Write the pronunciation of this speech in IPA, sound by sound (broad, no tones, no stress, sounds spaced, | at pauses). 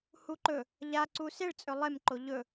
h u ǃ ɵ | ʎ a ǀ u s e ɭ t͡sʼ ɵ lˠ e m ǃ o ʎ ɵ